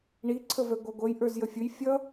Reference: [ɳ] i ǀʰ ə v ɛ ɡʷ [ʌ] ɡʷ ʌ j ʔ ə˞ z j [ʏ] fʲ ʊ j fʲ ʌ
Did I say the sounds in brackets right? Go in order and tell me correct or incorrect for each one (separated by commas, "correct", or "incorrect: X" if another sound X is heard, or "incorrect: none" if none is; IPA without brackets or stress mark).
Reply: correct, incorrect: ɑ, incorrect: ə